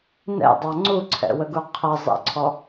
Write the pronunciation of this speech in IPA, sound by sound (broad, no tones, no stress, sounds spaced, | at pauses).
n ɛ̰ dˤ ɑ ŋ͡ǀ u ǀʰ ɛ̰ w ə ɡ u qʰ ə zˤ ɛ̰ ǀʰ ɔ